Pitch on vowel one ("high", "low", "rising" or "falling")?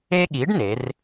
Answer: high